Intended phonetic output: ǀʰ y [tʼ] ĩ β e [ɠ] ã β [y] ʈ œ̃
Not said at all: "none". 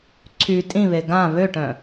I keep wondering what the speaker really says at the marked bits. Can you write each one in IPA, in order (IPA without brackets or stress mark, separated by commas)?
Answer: tʼ, ɡ, ø